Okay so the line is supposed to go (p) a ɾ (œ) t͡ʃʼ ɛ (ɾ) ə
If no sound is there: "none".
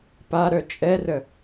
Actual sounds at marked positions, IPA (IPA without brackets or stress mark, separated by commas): p, œ, r